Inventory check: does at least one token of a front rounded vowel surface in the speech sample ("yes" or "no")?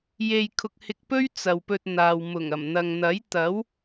no